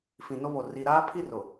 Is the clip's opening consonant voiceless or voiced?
voiceless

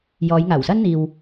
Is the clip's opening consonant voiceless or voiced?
voiced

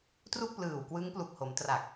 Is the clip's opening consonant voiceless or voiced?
voiceless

